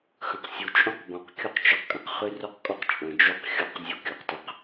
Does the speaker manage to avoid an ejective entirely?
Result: no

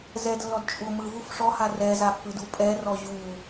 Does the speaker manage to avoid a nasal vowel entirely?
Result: yes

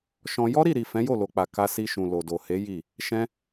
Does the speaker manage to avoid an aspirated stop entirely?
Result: yes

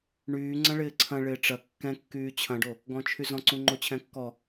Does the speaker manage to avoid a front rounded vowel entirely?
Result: no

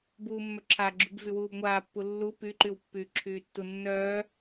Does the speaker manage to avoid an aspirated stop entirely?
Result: no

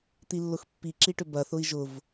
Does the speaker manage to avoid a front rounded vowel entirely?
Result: no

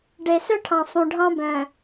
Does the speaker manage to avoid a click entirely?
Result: yes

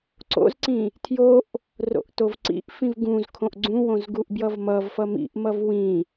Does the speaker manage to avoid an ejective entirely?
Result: yes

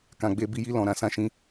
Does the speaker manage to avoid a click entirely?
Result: yes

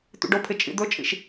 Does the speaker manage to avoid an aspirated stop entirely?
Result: no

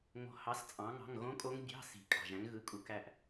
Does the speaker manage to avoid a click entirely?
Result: yes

